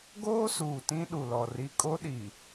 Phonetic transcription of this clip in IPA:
ɡ oː˦ s uː˨ t ĩ˦ ɗ u˨ l ɔ˨ r i˦ kʼ o˦ ɗ i˨

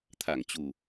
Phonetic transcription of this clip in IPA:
t̪ʰ a˧˩ ŋ t͡ɕ u˨˩

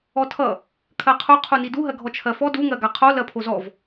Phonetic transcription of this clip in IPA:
ɔ tʰ ʌ | kʰ ɜ qʰ u qʰ u n i d u ɦ ɜ ɡʱ ɔ t͡ʃʰ ɜ f ɔ d u ŋ ɜ ɡ a qʰ o l ɜ pʰ o z ɔ v

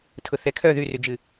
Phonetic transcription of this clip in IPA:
tʰ ʊ θ ɛ kʰ œ ð y r y d͡ʒ ɨ

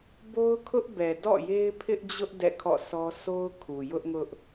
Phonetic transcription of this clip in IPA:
b o˦ ʊ̯ kʰ ʊ˦ ʔ b ɛ˨ d ɔ̰˦˨ j e˦ ɪ̯ pʰ ɪ˦ ʔ d͡ʑ ʊ˦ ʔ d ɛ̰˦˨ kʰ ɔ̰˦˨ sʰ ɔ˦ s o˦ ʊ̯ kʰ u˨ j ʊ˦ ʔ ŋ ʊ˦ ʔ

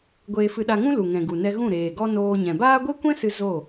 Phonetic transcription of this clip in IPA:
ɡʷ eː˧ f ɨ˧ ɗ a˧ ŋ ũ˦ l u˨ ŋ ɛ̃˨ ɡ u˨ n ɛ˧ ɣ ũ˦˨ ɾ eː˨ ɡ ɔ˦ n oː˧ ɲ ɛ̃˨ b aː˦ ɡʷ e˦ kʷ ɛ̃˦ s ɨ˧ z o˦˨

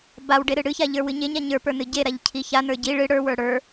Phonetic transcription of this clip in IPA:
b a w ɖ e ɾ ɨ ɽ ɨ ç a ʎ ə˞ w ɨ ɲ e ɲ a ɲ ə˞ p ə˞ n ɨ ɟ e ɾ a ʎ cʰ i ç a n ə˞ ɟ i ɭ ɨ ɽ ə˞ w ə˞ ɽ ə˞

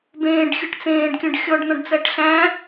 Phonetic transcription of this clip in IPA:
b ẽː ɖ xʲ ɨ ʈ t͡s ẽː ɖ kʲ õ ɖ xʲ ɔ ɖ n̪ ɔ̃ ɖ t͡s æ ʈ ɬ æ̃

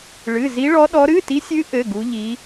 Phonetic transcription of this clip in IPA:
ɭ ɨ˧˥˧ z i˦˥ ɭ ɔ˦˥ ɗ ɔ˦˥ ɾ ɨ˧˥˧ t i˦˥ sʲ ɨ˦˥ ʔ ɘ˧˥˧ ɡ u˦˥ ʎ i˦˥

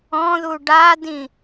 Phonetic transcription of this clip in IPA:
ɔ̃ ð u ɖ a d ĩ

